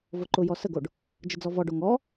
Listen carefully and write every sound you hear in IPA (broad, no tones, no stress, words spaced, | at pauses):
voǃʊjɔ səɡoɖ | d͡ʒəd͡zɔvɔɖo ŋɔ